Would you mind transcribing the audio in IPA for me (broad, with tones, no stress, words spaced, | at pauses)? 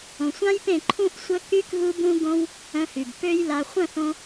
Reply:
õ˨sʷã˦jpẽ˦˨ ǃʰũ˦ʔsʷə˦ ky˦k ɣu˦bũ˦ɡõ˦w | œ̃˧hy˨b pø˦jla˧ χʷœ̃˦˨θõ˧